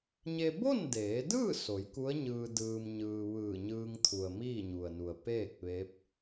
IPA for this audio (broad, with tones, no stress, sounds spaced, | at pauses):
ɲ e˧ b o˥˨ n d eː˩˧ d ɯː˥˨ s o˩˧ j k u˧˥ ə̯ ɲ ɯː˧ d ɯː˧ m ɲ ɯː˧ ʋ ɯː˧˩ ɲ ɯː˧ ŋ t̪ʰ u˩ ə̯ m iː˥˨ ɲ u˩ ə̯ n u˩ ə̯ p eː˥˨ k̚ ʋ e˧˥ p̚